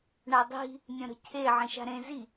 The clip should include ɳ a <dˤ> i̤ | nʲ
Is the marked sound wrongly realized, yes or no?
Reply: no